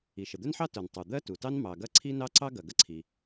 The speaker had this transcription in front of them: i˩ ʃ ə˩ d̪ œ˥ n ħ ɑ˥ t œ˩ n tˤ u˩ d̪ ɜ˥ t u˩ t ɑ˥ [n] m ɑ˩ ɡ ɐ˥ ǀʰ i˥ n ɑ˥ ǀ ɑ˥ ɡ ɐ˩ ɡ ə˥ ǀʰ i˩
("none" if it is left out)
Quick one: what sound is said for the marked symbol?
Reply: n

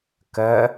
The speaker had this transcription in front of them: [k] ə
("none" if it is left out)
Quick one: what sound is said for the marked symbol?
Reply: k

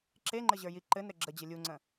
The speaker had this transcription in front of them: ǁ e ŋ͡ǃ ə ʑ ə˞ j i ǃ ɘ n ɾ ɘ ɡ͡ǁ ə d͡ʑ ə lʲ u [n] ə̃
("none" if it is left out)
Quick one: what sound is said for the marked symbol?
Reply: ŋ͡ǀ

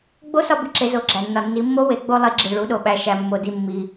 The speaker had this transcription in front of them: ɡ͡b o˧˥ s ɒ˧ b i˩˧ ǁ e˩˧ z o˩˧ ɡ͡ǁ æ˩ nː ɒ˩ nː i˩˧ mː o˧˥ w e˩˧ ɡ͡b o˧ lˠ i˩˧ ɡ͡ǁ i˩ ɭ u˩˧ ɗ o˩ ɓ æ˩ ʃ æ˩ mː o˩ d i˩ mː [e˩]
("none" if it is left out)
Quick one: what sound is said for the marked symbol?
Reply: i˩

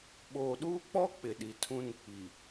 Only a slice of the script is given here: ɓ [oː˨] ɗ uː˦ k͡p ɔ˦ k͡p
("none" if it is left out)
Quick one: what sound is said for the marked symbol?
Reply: oː˨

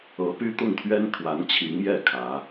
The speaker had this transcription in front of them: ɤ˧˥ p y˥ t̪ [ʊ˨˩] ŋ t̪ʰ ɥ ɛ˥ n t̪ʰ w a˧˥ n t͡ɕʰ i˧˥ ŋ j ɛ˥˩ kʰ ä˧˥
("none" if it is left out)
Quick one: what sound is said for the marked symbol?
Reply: ʊ˥˩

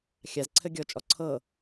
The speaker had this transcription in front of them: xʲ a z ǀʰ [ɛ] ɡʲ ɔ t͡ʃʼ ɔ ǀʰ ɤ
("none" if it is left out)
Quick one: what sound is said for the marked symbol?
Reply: ɘ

